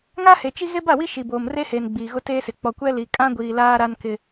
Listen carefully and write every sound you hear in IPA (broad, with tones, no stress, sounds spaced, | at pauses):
ŋ a˦ h e˨ t͡ʃ i˦ ɣ e˦ b a˦˨ w i˦ ʃ i˨ b oː˨ m r e˦ h eː˨ n ɡ͡b iː˨ ɣ ʊ˦ t eː˦ s ɪ˨ k͡p ɔ˨ kʷ ɛ˦ l i˨ kʼ ã˦ ɡʷ iː˨ l aː˦ ɾ a˦ n k ɪ˦